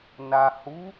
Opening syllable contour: low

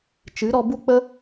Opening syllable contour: rising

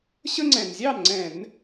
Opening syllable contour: high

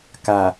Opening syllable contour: low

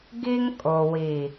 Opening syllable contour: high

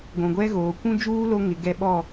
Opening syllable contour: low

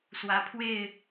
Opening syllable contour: rising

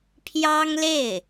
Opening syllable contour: high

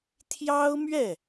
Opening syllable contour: high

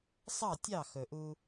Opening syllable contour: falling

